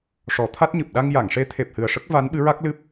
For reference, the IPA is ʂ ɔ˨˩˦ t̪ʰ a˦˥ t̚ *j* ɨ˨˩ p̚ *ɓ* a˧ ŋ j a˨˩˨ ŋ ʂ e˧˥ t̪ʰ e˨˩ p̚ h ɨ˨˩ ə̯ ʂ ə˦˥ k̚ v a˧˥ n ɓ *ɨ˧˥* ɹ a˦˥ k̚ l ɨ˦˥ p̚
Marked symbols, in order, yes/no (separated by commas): no, no, yes